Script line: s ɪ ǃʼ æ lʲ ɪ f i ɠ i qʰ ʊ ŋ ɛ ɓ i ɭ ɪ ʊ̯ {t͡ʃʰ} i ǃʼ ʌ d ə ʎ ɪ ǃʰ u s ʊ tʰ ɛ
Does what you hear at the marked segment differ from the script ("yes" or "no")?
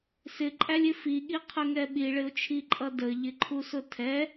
no